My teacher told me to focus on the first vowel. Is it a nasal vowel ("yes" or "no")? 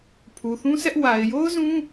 no